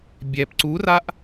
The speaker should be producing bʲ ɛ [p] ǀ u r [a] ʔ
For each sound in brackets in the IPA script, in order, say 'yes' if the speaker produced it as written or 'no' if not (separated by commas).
yes, yes